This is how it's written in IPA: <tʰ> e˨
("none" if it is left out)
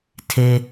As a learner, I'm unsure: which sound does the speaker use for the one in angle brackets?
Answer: tʰ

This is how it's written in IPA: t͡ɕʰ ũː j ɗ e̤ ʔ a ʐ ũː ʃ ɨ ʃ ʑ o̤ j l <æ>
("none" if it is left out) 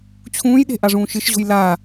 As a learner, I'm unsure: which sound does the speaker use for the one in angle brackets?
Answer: a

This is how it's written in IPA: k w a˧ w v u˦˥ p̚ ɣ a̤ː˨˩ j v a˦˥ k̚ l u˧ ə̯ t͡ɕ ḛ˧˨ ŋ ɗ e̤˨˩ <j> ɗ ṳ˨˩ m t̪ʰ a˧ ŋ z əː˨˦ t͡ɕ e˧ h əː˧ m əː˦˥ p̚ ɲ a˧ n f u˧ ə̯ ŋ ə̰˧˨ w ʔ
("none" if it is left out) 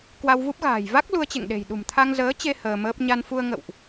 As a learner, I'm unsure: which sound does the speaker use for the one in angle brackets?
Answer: j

